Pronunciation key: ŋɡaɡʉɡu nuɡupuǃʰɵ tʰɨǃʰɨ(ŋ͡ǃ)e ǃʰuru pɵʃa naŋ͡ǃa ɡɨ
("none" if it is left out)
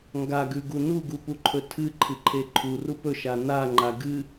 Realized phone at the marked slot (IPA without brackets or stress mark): ǃʰ